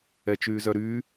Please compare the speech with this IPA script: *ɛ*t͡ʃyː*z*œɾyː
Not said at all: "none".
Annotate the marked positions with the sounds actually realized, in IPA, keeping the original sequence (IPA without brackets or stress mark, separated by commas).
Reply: ɛ, z